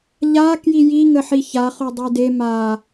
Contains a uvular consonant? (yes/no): yes